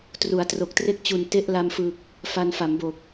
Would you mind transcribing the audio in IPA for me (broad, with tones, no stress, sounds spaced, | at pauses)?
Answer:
t r u˩˦ a̯ t r o˨˩ k̚ t r e˥˩ k̚ t͡ɕ u˨˩ n t e˦˥ ʔ l a˧ m f ɯ˨˩ k̚ | f a˧ n f a˩˦ m b o˨˩ k̚